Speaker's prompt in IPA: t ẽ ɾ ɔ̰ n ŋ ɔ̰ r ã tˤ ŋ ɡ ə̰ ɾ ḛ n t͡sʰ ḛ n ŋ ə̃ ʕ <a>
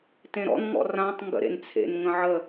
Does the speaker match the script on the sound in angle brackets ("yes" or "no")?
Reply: no